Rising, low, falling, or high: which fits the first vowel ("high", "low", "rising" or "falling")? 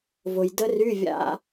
low